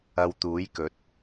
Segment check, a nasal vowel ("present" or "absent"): absent